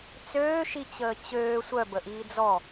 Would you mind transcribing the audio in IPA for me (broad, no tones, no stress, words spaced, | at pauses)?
t͡søːʃit͡ɕəː t͡ɕøː sʷœbəʔiː d͡zɔ